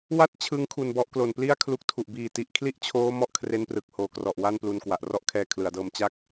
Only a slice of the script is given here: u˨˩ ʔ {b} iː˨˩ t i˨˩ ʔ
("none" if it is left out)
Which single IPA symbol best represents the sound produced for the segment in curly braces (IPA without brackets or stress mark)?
b